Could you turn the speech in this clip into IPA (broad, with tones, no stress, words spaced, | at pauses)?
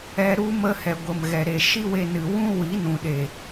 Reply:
ɛ˧ɾu˦ mə˧hɛ˨ɡʷə˨m ɣɛ˨ɾe˨ ʃi˦we˧nɨ˨ wũ˦ wi˨˦nũ˨ɗe˨